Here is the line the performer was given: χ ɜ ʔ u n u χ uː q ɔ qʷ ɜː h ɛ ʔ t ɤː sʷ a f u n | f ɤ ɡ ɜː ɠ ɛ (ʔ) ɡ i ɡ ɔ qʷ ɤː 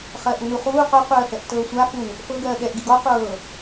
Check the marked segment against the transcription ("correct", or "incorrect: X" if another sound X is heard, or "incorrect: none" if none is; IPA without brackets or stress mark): correct